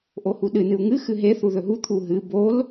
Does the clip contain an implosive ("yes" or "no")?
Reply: yes